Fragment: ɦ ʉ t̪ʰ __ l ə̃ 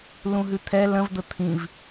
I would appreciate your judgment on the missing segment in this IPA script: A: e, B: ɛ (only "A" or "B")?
B